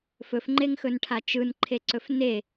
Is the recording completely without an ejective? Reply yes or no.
yes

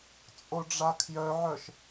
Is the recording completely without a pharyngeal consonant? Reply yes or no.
no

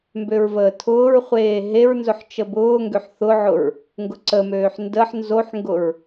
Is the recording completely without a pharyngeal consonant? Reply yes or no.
no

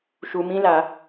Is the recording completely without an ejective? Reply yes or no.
yes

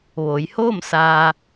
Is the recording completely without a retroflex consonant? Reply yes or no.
yes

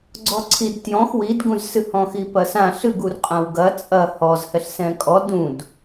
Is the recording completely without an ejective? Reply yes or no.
no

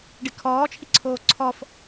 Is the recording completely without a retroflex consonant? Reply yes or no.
no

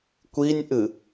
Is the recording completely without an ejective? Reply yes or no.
yes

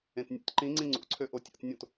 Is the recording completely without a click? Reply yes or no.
no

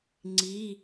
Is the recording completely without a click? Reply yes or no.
no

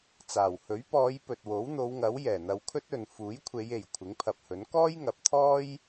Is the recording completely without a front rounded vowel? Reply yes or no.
yes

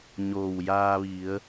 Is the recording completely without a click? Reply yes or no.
yes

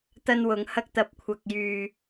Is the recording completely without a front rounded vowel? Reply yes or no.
no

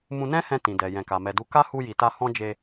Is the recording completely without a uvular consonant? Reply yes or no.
yes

